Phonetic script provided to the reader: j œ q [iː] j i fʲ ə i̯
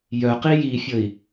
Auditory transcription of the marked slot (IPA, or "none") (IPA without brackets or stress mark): i